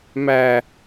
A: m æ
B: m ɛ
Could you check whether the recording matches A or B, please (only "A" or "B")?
A